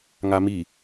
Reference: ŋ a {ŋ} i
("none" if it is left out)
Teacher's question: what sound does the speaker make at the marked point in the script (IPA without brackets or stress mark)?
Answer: m